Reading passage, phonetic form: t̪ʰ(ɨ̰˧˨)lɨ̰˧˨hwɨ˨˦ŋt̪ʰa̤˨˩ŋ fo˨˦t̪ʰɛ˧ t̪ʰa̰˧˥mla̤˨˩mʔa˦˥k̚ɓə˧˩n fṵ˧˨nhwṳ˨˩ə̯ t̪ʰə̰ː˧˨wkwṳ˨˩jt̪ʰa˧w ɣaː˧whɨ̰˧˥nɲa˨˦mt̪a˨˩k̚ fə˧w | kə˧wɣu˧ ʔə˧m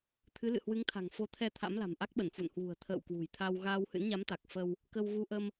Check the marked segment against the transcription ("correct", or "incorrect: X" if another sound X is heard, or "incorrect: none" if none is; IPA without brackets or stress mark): incorrect: ɨ˨˦